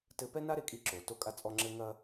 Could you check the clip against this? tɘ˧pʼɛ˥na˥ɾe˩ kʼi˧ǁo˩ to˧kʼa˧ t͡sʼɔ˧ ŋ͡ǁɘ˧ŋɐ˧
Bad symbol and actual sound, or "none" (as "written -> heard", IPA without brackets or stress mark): pʼ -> p